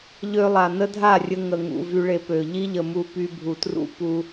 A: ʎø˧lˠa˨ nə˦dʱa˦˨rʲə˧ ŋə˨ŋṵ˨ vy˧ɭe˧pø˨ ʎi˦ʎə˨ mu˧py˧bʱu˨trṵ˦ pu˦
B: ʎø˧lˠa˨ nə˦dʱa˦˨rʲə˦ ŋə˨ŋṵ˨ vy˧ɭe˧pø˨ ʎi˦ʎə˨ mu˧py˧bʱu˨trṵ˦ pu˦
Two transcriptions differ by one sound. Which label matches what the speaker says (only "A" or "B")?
A